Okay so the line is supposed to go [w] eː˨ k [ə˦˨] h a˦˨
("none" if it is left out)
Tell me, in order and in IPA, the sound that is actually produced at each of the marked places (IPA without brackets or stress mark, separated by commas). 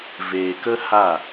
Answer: v, ə˦